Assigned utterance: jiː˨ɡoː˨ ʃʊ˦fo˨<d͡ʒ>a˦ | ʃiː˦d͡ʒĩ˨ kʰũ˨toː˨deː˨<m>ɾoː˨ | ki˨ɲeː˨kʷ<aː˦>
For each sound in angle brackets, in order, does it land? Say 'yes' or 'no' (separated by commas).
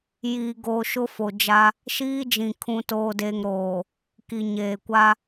yes, no, no